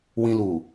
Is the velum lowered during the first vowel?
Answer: yes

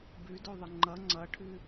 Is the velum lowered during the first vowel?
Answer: no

